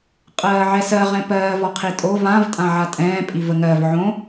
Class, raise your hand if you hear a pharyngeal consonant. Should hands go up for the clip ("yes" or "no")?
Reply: yes